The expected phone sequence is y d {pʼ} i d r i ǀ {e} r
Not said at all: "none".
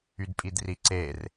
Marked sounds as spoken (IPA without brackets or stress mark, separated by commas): pʼ, e